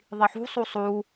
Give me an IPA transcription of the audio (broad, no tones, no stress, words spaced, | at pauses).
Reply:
ðˤiħṳsˤu sˤu